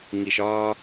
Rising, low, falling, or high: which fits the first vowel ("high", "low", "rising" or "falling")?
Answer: low